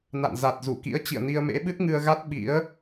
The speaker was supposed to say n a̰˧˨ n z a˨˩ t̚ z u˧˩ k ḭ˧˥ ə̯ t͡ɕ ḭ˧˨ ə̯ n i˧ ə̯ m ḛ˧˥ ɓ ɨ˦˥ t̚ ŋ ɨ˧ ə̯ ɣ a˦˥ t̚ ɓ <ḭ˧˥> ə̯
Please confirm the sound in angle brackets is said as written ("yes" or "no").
yes